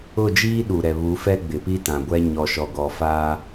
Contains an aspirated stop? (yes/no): no